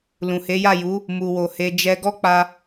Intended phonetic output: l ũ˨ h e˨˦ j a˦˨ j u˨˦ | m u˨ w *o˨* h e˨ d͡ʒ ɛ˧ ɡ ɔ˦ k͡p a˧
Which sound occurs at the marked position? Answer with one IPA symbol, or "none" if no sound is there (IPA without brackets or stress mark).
o˨